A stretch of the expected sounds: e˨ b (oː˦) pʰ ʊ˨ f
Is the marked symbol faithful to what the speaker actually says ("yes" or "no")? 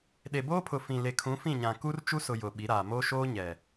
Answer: yes